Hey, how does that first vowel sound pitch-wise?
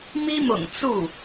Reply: high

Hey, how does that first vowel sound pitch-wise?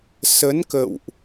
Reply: rising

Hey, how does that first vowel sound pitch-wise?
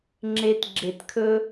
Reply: high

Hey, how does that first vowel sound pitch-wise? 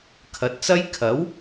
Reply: rising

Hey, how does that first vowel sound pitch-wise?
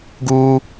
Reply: high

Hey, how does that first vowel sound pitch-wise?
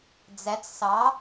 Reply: rising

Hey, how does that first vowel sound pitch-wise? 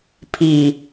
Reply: low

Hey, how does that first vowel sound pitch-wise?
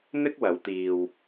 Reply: high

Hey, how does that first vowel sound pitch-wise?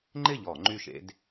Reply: falling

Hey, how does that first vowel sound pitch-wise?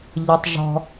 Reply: low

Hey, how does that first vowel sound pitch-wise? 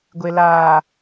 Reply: low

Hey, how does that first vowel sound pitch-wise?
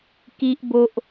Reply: high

